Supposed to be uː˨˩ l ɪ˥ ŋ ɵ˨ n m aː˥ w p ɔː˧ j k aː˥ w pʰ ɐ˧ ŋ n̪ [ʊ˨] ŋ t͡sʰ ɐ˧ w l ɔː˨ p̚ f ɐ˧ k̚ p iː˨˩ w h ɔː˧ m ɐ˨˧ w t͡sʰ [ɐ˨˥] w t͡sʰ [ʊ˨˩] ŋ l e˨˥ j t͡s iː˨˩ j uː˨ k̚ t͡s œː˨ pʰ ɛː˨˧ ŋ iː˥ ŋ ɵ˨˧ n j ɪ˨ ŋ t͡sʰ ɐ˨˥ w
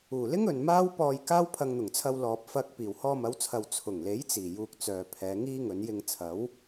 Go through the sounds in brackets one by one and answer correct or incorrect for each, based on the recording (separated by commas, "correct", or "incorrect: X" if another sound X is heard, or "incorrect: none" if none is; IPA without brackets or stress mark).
incorrect: ʊ˨˩, incorrect: ɐ˨, correct